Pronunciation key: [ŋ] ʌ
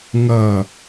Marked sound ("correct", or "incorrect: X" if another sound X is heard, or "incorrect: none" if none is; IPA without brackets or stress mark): correct